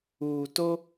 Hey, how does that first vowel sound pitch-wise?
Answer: low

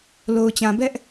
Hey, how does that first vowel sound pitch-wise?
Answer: low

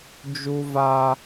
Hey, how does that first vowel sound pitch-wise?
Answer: high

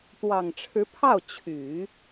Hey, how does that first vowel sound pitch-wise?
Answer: low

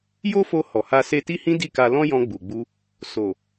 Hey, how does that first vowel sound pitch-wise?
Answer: high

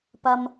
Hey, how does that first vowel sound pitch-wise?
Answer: low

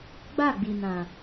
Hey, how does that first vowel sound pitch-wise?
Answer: falling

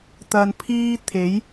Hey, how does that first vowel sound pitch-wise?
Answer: low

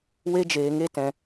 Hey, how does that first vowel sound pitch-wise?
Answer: high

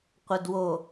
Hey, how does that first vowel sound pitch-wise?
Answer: low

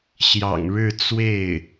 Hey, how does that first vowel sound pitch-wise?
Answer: low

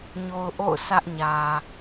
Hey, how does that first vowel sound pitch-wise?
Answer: low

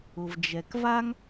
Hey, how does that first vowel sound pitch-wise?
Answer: low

